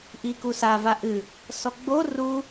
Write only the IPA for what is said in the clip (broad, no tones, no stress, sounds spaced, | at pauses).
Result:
ʔ i k u s a v a ʔ ɨ | s ɔ ɡ͡b o r u